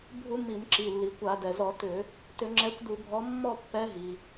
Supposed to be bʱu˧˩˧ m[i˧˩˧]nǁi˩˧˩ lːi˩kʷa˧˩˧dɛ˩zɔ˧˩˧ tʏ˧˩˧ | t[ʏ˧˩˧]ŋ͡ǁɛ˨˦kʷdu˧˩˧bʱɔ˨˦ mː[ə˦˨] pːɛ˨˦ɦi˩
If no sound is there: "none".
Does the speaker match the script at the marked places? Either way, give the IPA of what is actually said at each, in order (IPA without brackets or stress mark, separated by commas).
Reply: i˧˩˧, ʏ˧˩˧, ɔ˦˨